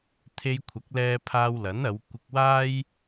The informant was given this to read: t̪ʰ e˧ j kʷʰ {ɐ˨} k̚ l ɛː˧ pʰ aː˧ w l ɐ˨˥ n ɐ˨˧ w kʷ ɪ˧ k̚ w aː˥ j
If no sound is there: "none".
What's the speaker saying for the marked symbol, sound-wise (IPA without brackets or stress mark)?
ɐ˨˥